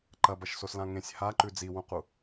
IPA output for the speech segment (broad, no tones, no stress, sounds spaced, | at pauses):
ǃ ɐ b ɐ ʃ s o s l ã ŋ ẽ sʲ h a ǃ ʉ d͡z i w ũ q u